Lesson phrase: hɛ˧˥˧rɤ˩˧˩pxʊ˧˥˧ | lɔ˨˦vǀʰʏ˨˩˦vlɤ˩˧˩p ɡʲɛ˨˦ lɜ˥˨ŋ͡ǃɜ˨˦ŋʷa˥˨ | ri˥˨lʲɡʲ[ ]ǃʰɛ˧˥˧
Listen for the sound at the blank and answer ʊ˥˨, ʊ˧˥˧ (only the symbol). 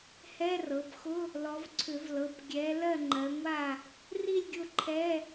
ʊ˥˨